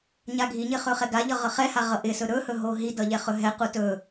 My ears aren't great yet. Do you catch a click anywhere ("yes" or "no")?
no